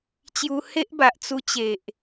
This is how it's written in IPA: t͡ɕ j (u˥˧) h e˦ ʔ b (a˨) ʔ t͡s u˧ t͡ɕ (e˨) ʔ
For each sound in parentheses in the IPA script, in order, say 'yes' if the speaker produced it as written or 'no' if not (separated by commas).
no, yes, yes